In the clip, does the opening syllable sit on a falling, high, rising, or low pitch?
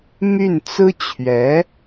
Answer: falling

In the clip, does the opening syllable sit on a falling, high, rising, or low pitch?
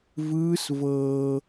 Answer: high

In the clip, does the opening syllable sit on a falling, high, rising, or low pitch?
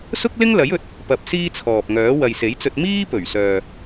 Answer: high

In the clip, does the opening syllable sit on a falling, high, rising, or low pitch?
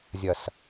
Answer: low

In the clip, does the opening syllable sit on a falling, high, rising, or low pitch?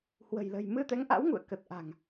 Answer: low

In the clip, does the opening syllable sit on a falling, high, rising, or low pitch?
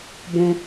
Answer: high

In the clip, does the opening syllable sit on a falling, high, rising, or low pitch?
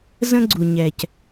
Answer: high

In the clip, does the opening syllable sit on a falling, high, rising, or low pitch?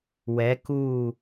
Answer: rising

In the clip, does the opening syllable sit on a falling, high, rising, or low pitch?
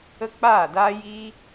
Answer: high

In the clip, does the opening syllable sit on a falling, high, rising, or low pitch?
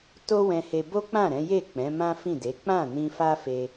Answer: high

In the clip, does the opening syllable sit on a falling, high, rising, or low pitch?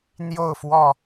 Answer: falling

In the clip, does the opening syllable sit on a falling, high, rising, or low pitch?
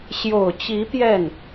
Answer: low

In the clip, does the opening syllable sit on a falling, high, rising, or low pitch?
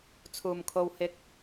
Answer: low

